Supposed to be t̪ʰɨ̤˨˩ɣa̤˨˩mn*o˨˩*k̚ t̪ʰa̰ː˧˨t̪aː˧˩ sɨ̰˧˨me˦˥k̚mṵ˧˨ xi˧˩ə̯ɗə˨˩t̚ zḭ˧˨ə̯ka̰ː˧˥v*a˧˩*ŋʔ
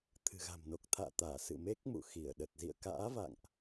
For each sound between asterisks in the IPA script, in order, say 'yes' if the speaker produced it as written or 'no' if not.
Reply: yes, no

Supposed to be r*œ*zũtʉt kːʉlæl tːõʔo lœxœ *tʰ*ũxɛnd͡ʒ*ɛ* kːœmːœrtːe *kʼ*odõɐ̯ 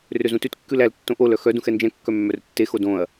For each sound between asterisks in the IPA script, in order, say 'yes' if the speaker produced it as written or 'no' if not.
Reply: no, no, no, no

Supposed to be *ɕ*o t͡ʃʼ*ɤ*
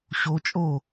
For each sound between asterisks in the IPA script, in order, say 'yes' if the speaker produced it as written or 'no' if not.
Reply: yes, no

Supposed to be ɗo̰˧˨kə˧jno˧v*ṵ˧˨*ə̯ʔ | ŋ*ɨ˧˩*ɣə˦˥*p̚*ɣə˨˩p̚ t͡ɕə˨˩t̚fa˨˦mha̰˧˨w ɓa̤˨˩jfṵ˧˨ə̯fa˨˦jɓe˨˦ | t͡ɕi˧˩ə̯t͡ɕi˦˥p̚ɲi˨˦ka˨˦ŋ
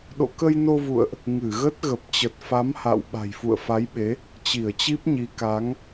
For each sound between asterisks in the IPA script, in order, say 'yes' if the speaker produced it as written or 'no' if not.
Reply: yes, yes, no

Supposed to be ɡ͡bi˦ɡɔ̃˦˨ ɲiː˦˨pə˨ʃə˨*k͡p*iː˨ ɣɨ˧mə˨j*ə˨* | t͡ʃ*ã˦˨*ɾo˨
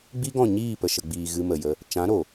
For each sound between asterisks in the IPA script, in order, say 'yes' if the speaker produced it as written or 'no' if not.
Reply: no, no, no

